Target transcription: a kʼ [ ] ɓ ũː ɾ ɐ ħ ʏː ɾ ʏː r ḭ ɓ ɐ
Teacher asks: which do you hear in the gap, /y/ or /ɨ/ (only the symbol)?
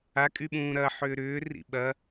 y